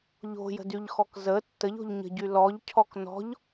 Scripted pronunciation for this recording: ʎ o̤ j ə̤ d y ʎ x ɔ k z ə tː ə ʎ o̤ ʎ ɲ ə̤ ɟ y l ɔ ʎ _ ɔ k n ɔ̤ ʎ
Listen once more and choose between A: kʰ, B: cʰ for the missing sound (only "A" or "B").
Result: B